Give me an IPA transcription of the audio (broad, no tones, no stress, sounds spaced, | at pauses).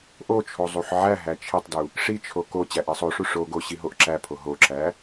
ʔ o t͡ʃʰ o zˤ u ħ ʕ æ ɦ æ t͡ʃʰ i tˤ d u | ʂ i t͡ʃʰ o k o t͡ɕ æ ʔ i sˤ o ʂ u ʂ o ɡ o ɕ i ɦ o ʔ ǁ æ pʰ o ɦ o ǁ æ